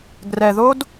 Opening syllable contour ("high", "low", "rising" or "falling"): low